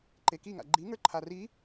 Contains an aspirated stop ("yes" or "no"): yes